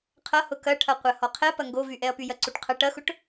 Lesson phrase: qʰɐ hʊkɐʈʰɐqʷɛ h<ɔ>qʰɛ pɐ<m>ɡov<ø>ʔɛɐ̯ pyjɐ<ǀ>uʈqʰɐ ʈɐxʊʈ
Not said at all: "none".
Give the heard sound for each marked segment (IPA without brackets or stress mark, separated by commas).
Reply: ɔ, ŋ, y, ǀ